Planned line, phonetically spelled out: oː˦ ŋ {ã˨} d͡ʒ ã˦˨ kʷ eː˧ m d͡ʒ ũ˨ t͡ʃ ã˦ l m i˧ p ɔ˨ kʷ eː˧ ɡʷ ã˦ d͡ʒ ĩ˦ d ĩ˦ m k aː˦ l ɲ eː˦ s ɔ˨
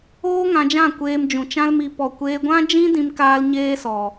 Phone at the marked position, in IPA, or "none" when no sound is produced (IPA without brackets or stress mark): ã˧